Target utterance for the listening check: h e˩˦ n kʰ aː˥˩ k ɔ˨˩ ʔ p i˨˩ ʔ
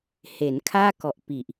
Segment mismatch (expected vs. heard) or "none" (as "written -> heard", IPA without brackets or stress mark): none